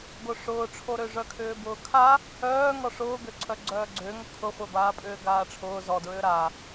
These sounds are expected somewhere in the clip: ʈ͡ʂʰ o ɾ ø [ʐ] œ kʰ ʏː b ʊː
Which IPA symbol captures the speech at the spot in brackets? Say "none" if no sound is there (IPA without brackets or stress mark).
ʐ